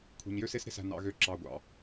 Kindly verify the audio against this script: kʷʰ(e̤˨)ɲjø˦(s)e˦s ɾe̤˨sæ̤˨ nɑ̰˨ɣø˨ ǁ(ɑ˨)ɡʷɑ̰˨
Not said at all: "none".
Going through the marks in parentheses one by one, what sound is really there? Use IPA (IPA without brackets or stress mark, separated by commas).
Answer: e̤˨, s, ɑ˨